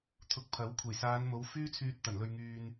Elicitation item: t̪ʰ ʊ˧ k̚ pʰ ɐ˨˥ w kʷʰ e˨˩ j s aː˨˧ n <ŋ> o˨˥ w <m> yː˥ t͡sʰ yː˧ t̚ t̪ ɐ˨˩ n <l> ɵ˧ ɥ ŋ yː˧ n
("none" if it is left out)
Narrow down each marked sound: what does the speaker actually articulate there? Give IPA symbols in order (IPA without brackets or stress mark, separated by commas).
m, f, l